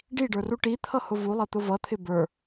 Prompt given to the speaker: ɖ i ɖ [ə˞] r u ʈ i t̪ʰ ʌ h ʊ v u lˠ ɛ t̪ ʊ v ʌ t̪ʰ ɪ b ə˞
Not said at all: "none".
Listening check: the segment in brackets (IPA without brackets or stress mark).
ə˞